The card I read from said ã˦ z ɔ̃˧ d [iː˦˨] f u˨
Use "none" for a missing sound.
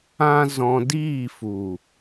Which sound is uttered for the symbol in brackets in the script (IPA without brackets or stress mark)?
iː˦˨